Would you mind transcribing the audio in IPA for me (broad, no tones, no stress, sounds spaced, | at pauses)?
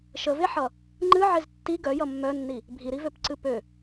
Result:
ʃ ə v e ħ ʌ | ŋ͡ǃ ɨ ʕ e z tː i ɡ œ j ʌ mː œ nː i | bʱ i ɾ i v ø p ǀ ɨ p ø